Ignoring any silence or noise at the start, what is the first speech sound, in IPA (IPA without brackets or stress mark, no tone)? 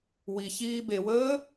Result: w